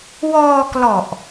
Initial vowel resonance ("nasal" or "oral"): oral